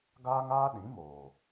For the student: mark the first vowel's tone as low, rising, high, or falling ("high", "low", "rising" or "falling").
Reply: high